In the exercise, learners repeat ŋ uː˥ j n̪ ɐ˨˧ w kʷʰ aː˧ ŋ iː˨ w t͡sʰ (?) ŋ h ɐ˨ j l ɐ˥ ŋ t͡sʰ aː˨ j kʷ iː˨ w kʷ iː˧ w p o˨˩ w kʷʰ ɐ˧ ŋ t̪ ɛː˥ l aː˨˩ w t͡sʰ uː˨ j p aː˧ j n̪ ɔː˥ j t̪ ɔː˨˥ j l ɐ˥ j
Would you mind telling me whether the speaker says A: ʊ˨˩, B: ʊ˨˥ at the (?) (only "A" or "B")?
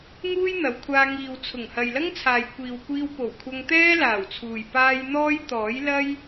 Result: A